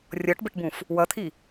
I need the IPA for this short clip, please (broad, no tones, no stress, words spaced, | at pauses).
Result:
rʲɔʈbɘʈbũf | wʌt̪ʰi